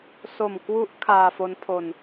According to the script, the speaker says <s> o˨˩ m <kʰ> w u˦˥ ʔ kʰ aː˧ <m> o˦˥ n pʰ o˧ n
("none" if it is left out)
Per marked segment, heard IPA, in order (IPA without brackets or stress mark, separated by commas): s, k, f